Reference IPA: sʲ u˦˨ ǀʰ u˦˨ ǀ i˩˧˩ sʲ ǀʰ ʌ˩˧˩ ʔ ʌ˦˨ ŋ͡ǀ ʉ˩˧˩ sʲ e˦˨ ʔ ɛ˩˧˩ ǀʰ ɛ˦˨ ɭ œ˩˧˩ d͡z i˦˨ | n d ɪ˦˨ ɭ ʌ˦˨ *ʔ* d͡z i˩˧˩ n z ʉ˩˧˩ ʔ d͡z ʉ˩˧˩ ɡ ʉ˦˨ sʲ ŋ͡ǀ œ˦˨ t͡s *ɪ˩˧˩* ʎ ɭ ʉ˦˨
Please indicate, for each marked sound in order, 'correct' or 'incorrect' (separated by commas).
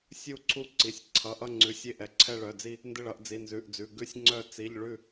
correct, incorrect